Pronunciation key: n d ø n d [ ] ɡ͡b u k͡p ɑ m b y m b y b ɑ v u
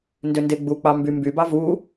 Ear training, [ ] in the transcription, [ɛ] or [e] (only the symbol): e